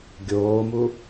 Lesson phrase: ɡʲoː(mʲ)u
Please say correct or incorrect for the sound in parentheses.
incorrect